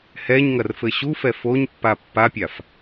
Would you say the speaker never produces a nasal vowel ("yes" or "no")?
yes